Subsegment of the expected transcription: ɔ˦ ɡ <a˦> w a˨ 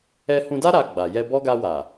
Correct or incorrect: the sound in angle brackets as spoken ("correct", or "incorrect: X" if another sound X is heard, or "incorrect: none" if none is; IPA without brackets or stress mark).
incorrect: a˧